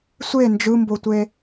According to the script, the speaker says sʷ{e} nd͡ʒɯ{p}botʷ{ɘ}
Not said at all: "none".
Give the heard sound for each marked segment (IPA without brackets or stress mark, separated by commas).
e, m, e